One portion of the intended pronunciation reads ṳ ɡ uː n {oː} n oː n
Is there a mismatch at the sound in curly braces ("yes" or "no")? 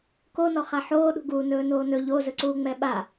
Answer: yes